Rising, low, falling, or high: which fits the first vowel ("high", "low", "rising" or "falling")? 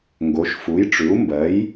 rising